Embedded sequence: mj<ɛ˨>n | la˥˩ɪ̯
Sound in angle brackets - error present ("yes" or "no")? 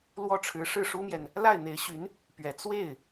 no